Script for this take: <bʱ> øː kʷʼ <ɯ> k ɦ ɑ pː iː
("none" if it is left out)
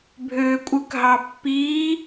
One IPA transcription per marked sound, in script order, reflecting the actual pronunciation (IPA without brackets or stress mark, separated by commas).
bʱ, ɯ